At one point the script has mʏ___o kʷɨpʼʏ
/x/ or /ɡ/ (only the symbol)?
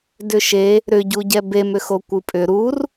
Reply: x